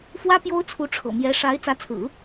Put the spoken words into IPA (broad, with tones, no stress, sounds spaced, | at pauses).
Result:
f w ä˥ p j o˥ ʊ̯ t͡sʰ u˧˥ ʈ͡ʂʰ ɤ̰˨˩ m j ɛ˧˥ ʂ a˧˥ ɪ̯ t͡s ä˧˥ t͡sʰ ɹ̩˨˩˦